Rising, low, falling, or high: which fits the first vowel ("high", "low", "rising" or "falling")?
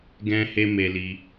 high